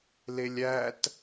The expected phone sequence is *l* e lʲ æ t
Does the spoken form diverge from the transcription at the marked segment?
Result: no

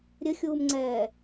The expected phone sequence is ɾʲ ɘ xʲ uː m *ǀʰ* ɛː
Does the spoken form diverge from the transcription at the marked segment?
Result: yes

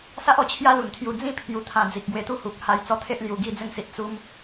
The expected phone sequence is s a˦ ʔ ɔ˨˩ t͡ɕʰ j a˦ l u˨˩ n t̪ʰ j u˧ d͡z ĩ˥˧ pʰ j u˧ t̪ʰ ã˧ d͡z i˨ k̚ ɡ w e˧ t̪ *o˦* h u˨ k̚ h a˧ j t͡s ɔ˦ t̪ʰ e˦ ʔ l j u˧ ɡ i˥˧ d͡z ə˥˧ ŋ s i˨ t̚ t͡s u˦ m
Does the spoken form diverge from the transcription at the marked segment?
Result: yes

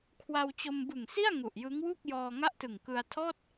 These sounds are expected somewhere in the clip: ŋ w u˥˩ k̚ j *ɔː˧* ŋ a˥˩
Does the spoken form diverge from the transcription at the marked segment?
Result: no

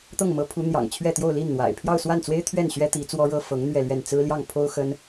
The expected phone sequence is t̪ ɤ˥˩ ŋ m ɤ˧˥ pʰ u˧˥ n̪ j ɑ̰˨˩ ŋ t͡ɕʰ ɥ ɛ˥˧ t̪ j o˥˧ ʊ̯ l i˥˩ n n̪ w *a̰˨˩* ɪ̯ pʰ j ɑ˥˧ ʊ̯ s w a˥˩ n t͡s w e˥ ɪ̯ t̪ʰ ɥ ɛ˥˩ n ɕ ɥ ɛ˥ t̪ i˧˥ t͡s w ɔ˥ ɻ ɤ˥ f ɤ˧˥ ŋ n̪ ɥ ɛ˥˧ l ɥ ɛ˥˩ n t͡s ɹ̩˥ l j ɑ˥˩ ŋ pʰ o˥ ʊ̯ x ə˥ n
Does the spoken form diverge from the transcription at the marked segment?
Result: no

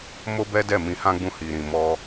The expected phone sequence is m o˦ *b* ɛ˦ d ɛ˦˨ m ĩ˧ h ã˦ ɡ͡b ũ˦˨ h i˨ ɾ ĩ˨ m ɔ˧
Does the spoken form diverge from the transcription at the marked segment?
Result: no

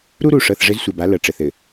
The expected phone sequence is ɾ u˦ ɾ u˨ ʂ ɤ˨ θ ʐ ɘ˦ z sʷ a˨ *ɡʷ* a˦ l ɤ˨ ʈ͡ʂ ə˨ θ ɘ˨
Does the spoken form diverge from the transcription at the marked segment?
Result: yes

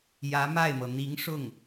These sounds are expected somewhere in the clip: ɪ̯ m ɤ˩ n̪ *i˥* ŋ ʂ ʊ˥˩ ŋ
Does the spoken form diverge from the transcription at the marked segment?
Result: yes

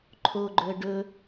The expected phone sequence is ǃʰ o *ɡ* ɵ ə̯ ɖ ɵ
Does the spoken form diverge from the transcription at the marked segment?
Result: yes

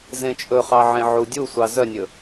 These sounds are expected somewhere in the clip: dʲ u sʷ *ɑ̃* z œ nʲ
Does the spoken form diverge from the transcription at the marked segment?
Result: yes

